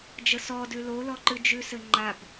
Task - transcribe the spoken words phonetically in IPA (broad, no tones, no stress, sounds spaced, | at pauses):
d͡ʒ ə s ɔ d ʉ l o l ɔ ǃ ɨ d͡ʒ ʉ s ɘ ŋ͡ǃ a b